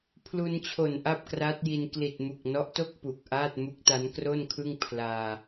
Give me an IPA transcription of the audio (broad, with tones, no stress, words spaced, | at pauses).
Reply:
pʰlu˧nt͡ɕʰo˨˩n ʔa˥˩p̚kra˦˥t̚ji˧n kli˨˩t̚mu˨˩k̚nɔ˦˥ʔto˥˩k̚ pu˨˩k̚ʔaː˥˩t̚ mu˦˥k̚ta˦˥nkro˥˩nkʰɯ˥˩ŋ pʰlaː˧